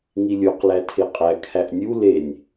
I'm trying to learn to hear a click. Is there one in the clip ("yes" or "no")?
no